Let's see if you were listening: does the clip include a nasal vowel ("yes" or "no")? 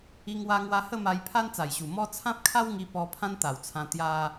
yes